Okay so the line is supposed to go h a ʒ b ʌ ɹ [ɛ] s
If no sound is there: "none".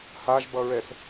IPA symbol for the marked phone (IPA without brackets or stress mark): ɛ